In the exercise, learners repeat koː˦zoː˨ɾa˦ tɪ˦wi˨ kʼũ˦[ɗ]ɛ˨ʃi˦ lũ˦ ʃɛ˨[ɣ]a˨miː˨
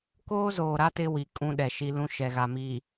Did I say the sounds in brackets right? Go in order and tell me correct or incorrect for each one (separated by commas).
correct, correct